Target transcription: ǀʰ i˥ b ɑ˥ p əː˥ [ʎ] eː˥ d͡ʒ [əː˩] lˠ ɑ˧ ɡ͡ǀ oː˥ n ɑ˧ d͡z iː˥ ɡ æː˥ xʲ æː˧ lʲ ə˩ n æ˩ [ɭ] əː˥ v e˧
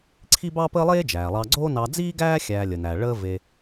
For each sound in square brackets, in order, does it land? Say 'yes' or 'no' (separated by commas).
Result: no, no, yes